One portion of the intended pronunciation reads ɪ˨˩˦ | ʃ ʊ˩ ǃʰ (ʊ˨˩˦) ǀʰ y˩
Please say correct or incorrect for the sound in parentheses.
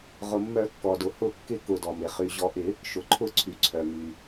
correct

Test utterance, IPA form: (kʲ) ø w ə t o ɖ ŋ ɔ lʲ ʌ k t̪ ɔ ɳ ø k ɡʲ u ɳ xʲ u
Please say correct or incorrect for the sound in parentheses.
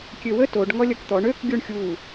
correct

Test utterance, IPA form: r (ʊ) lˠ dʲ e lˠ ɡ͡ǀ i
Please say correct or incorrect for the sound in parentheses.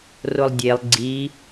correct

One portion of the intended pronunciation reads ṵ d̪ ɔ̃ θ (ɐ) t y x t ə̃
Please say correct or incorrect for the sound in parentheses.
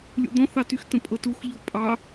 incorrect: ɑ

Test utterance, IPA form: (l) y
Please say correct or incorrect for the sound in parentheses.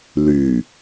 correct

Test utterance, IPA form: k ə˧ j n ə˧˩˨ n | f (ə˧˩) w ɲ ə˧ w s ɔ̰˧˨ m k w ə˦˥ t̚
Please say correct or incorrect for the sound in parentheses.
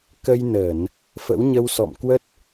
incorrect: ə̰˧˥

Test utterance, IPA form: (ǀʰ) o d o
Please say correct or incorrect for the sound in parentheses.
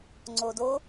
incorrect: ŋ͡ǀ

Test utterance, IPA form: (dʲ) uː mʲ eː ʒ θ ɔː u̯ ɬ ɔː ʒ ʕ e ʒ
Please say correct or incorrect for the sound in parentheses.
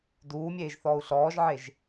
incorrect: d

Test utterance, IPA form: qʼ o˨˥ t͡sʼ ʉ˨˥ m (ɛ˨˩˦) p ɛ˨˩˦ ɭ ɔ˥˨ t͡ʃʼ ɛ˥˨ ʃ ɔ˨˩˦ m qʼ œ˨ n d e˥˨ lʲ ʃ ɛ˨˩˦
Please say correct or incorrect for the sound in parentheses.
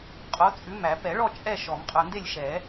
incorrect: æ˨˩˦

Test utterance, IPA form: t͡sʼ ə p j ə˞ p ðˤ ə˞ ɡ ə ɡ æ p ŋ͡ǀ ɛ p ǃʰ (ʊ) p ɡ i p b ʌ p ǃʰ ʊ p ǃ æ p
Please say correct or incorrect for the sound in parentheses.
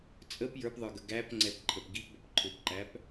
incorrect: ə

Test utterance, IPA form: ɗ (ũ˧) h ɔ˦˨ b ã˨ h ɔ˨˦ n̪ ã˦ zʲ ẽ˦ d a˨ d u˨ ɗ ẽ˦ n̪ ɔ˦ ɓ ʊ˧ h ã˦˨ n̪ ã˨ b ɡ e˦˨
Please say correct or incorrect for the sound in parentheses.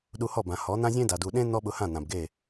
incorrect: u˧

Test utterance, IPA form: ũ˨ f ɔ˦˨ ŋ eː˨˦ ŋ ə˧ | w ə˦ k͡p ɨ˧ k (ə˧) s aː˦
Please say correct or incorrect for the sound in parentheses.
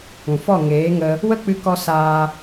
incorrect: ɔ˧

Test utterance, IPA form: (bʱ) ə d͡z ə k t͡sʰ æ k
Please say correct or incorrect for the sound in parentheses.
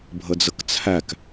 correct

